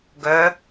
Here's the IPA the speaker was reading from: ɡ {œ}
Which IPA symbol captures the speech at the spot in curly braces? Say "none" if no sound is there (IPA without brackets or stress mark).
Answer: œ